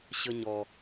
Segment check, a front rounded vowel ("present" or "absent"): absent